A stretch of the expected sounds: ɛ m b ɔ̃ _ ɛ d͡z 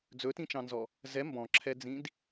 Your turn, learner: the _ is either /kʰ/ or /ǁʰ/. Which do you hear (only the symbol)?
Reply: ǁʰ